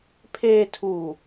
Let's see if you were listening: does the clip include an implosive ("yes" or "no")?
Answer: no